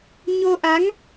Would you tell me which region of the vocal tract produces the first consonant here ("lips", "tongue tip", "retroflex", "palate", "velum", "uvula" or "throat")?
palate